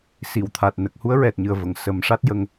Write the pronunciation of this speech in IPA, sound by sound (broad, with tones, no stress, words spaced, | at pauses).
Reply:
si˨˩˨wt̪ʰa˨˩t̚nə˨˩k̚ hu˧˥ə̯ɹɛ˨˩t̚ɲɨ˨˩ə̯və˨˩˨ŋ sə˨˩˦mʂa˦˥t̚ jə˧ŋ